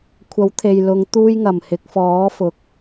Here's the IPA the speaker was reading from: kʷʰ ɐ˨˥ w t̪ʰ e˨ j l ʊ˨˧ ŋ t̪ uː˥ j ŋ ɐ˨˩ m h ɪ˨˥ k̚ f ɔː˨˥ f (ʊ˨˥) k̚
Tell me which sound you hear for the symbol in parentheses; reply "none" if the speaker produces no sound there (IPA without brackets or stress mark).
ʊ˨˥